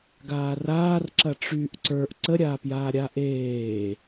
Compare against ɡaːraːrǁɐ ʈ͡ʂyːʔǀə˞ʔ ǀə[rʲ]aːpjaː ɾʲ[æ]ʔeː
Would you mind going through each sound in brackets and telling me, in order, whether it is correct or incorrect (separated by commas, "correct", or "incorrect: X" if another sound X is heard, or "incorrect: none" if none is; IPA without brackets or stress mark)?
incorrect: ɾʲ, incorrect: a